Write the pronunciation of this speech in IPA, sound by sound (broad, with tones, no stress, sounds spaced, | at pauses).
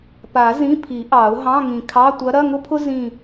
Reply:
p a˨˩˦ z ĩ˧˥˧ pʰ i˨˩˦ ʔ ɑ˨˩˦ ʊ̯ ɦ ɑ̃˧˥˧ ŋ ĩ˨˩ kʰ ɑ˧˥˧ tʷ ɐ˧˥ ɾ ɐ˧˥˧ ŋ ʊ˥ pʰ ʊ˥ z ĩ˦˨